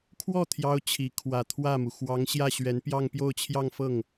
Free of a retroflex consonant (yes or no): yes